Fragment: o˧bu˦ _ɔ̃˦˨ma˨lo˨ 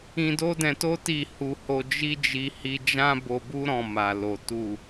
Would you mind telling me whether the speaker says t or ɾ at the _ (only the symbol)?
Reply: ɾ